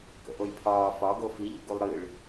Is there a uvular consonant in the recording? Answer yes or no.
no